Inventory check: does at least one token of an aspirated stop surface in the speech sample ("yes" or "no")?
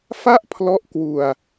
yes